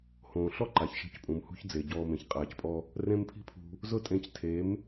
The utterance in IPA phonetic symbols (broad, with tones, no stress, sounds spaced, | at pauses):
h õː˨ ɬ ɔ˦ ǃ a˨ ç ʃ e̤˦˨ c pʼ ũ˨ m h ṳ˦ ç d͡z e˨ ɟ ɔː˧ m ẽ˨ ç qʼ aː˨ c pʼ ɔ˧ | r ẽ˦ m pʰ i̤˦ pʰ ṳ˧ | z ʊ˦ tʼ ẽ˧ c tʰ e˨˦ m